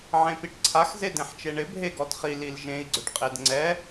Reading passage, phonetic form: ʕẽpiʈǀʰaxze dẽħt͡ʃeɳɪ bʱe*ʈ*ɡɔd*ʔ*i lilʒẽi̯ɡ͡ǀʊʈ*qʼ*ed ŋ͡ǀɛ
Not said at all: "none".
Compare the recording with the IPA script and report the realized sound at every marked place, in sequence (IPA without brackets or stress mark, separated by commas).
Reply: none, χ, qʼ